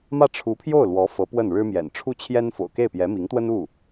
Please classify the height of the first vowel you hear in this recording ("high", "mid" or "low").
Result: low